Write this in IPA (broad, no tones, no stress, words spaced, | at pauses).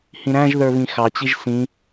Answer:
hĩɾæ̃ʒðə˞ βĩxɑt͡ɕiʒ sĩ